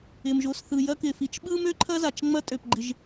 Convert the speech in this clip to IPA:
ɪ˨ m ʒ o˨ s θ ɯ˨ j ɐ˦ k ɪ˩ f i˨ t͡ʃ ɓ ɯ˥ m ø˥ ǃʰ ɐ˥ z a˩ t͡ʃ ŋ͡m ɐ˦ tʼ ø˩ p ɡ͡ǃ ɪ˨ ʒ

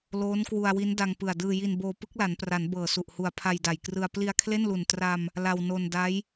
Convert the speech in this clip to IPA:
l oː˦˥ n k w u˧ a̯ w i˦˥ n d a˧ ŋ p ɯ˨˩ a̯ d ɯː˧ j i˧ n b oː˧ p ɯ˦˥ k̚ l a˩˦ n p r a˩˦ n b ɤː˨˩ s u˨˩ ʔ h u˨˩ a̯ pʰ a˧ j d a˨˩ j k r ɯ˧ a̯ p l i˧ a̯ kʰ l e˥˩ n l u˨˩ n t r a˧ m | l a˧ w n o˧ n d a˦˥ j

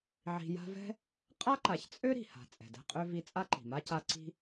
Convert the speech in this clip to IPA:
ʕ i̤˨ j a̤˦ v ɛ̤˥ | qʼ a˥ ǃ a˨ ç t͡sʼ ø˥ ɾ i̤˩ h a̤˩ t͡sʼ ɛ̤˩ d ɛ̤˦ qʼ ø˥ v i˦ t͡sʼ a˥ ǃ i̤˩ m a˥ c a˦ ǀ i̤˥

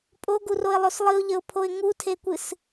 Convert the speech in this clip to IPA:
pʼ o ɡ u r o ɪ̯ lˠ o s lˠ ɨ ʊ̯ ʎ ə ʊ̯ pʰ o ɪ̯ ŋ u tʰ e kʷ ɨ s

